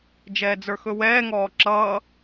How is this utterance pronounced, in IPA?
d͡ʒɛːd͡zə˞xɵwɛː ŋɔːǁʌː

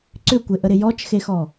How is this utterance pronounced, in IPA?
ǀʏkʷeʔəɾɪ jɔt͡ʃxexɔ

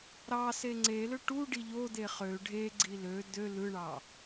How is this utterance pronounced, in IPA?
ɾɑse ŋ͡ǀelø ʈu ɖiʎod̪e χø ɖʱeɡ͡ǀi lø d̪ø lɯɳɑ

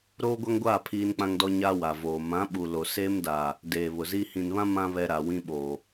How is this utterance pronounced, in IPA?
ɾoː˦ɡʷa˦ŋɡʷaː˦˨ pʰiː˦nk͡pã˦ŋdɔ˦ ɲa˦wa˨voː˨ mã˨˦ɓu˨ lo˨seː˦mda˨ | deː˨βʊ˨ziː˦ hĩ˨nβã˦ mã˦ βɛ˦ɾa˨ wĩ˦ɓoː˨

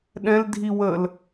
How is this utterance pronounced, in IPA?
ɗɛ̃ldʱi wəl

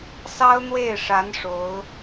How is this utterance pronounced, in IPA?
sɑ˥ʊ̯n̪we˥˩ɪ̯ʂa˧˥n ʂo˧˥ʊ̯

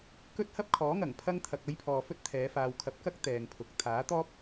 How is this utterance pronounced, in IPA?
kɵ˥t̚hɐ˥p̚kʰɔː˨˥ŋɐ˨˩ŋ pʰɐ˥ŋt̪ʰɐ˨k̚ɐ˥j pʰɔː˨fɵ˥t̚t̪ʰɛː˨˧ faː˨wkʰɐ˨˥p̚kɐ˥k̚ t̪ɛː˨ŋpʰʊ˨˥k̚ t̪ʰaː˨˥t̪ɔː˥p̚

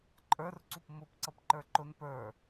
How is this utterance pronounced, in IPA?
ǃʼə˞rǀup mʊpǀʌp ǃə˞ǃʊn pə˞

